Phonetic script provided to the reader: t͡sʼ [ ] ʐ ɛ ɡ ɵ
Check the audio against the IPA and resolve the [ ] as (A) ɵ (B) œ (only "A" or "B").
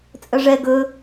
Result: B